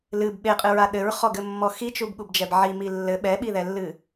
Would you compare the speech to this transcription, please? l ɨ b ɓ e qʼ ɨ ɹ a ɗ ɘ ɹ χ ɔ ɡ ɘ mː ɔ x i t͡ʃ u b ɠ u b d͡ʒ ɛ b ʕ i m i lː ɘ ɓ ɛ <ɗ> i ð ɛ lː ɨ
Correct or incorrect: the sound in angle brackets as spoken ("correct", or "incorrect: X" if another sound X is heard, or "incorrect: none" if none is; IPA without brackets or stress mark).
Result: incorrect: ɓ